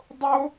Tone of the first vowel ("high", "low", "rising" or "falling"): high